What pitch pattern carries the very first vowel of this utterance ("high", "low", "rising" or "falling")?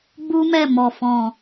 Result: high